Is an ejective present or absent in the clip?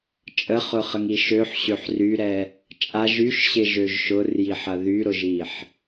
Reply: present